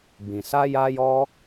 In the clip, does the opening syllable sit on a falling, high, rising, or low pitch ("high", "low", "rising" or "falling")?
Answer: low